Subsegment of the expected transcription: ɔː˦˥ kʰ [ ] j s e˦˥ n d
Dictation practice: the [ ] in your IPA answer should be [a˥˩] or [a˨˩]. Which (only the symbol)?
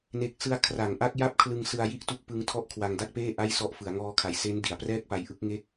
a˨˩